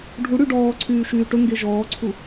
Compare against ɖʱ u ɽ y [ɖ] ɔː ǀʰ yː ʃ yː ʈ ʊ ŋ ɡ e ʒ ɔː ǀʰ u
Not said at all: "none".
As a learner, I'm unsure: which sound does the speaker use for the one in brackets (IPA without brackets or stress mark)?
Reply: ɖ